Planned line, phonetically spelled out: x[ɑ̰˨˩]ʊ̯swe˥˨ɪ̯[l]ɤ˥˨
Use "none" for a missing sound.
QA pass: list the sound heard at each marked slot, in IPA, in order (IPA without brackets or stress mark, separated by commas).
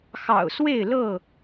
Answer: ɑ̰˨˩, l